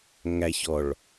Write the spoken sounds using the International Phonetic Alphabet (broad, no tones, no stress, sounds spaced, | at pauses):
ŋ æ ç ɔ ɭ